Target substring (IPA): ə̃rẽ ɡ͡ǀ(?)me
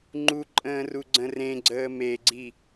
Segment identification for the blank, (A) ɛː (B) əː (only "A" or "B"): B